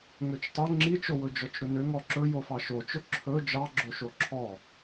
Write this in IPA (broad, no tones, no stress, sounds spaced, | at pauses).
ŋ ø t͡ʃ tˤ ɵ ŋ͡ǁ i t͡ʃ o w ɵ d͡ʒ ɔ t͡ʃ ɾ ɵ n ø ŋ ɔ ǁ ɵ j o f ɑ ʃ o t͡ʃ ɵ ǁʰ ɵ d͡ʒ ɑ ɡ͡ǁ o ʃ o ǁʰ ɔ